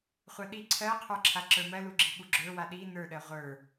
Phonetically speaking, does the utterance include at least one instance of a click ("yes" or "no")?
yes